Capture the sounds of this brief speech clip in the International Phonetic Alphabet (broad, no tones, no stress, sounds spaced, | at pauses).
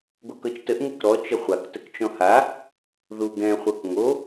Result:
ɡʷ ɘ k ɤ t͡ʃ t ə ʔ ŋ ɘ k ɾ ɔ t͡ʃ ə χʷ a k t ə k t͡ʃ ɔ̃ h a | ð u ɡ ɛ̃ χʷ ɤ k ŋ o